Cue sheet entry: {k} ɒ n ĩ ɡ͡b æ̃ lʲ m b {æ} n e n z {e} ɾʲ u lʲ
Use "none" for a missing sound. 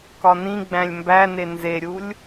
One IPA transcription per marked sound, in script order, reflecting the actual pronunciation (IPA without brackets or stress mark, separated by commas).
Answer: k, æ, e